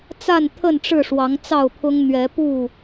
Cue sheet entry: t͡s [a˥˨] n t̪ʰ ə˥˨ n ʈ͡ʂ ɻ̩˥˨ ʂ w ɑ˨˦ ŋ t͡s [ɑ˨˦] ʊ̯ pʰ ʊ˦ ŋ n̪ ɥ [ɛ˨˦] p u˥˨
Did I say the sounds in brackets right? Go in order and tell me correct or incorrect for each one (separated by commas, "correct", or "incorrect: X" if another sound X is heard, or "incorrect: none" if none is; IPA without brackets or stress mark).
correct, incorrect: ɑ˥˨, correct